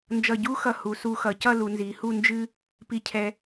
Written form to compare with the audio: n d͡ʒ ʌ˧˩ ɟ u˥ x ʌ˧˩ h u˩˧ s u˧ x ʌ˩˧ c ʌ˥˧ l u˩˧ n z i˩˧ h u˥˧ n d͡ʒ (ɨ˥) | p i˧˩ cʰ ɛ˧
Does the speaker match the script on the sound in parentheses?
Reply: yes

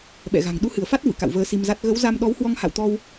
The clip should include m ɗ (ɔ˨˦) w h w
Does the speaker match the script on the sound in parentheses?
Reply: yes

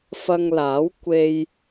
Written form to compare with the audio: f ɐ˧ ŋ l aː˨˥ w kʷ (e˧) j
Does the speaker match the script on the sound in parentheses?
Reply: yes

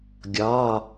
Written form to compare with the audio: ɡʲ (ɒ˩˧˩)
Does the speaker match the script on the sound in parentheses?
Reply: yes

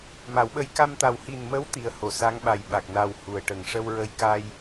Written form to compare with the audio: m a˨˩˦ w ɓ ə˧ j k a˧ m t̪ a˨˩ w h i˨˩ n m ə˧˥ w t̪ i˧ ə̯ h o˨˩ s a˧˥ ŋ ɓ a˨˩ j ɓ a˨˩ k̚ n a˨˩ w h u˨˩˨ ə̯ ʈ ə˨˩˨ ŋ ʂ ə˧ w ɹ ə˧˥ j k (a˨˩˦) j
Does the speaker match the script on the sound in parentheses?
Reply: no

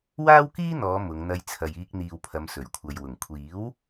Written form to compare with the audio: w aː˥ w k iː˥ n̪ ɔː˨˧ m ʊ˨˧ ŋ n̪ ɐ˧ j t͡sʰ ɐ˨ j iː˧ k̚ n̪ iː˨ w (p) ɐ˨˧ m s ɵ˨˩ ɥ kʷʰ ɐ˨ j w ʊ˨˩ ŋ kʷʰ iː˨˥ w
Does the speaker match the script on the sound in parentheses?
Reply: no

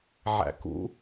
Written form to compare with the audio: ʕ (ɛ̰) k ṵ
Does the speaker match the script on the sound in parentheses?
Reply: no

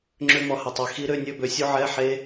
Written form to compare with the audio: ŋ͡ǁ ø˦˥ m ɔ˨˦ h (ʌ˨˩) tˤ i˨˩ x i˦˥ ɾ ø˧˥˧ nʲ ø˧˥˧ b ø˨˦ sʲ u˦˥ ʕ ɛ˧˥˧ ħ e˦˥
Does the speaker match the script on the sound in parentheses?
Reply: yes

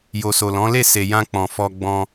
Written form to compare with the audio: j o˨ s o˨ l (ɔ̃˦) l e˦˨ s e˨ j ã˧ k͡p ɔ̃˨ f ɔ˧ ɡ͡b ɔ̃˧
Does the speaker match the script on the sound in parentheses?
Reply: no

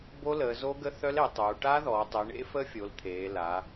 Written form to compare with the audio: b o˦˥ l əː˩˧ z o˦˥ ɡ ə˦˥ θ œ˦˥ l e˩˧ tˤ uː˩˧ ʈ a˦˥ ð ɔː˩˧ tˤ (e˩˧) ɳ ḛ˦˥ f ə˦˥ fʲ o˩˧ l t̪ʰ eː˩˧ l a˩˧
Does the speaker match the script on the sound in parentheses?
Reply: no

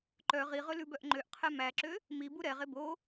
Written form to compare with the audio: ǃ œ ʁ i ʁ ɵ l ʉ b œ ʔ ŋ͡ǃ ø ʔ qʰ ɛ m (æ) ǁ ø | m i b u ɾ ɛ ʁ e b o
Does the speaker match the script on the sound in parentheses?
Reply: yes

